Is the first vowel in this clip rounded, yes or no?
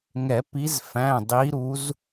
no